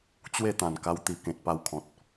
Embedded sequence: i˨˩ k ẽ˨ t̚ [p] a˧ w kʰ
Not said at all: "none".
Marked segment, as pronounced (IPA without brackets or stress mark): p